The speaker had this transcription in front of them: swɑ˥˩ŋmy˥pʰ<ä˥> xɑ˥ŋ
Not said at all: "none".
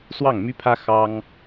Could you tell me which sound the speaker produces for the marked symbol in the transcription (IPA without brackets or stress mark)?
ä˥